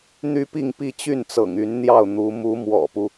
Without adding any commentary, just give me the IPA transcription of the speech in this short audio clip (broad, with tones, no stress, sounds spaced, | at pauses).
n̪ y˥ p i˥˧ ŋ p i˥˧ t͡ɕ y˥˩ n t͡s ɤ̰˨˩ ŋ y˧˥ n n̪ j ɑ˥˩ ʊ̯ n̪ u˧˥ m u˧˥ m w ɔ̰˨˩ p u˦